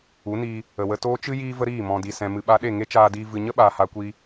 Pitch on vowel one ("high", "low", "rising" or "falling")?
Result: rising